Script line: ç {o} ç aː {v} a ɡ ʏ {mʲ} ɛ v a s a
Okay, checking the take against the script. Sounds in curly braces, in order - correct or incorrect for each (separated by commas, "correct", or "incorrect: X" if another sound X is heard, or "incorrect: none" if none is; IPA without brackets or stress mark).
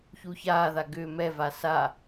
incorrect: u, incorrect: ð, incorrect: m